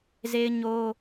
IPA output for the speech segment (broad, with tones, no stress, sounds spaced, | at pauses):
z e˦ ɪ̯ ɲ o˦